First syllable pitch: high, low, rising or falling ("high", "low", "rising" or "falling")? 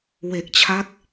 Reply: low